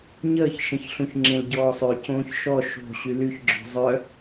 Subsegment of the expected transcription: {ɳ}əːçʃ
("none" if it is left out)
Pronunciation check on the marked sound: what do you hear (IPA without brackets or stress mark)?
ɲ